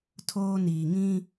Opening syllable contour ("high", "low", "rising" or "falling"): high